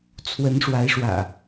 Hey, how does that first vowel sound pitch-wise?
rising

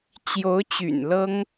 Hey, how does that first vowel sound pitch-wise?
rising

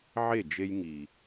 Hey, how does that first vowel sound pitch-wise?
falling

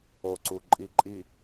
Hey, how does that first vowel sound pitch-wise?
low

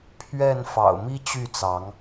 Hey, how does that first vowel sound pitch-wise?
falling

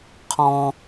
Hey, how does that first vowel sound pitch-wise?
high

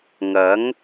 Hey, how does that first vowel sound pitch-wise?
rising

